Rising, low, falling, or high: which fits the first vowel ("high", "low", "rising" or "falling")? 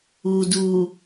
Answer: low